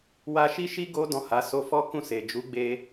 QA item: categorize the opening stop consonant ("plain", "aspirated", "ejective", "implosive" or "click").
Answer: plain